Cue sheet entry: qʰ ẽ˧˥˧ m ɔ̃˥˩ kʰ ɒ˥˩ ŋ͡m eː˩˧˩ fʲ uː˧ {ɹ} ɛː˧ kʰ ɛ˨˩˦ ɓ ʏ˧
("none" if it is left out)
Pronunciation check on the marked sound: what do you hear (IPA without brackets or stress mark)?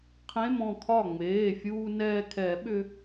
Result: n